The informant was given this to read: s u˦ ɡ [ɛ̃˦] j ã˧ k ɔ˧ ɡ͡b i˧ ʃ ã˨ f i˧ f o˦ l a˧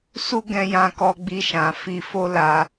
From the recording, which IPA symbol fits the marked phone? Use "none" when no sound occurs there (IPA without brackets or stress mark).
ɛ̃˧